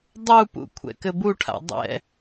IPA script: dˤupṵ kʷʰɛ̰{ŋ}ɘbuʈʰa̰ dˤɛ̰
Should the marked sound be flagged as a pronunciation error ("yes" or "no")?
yes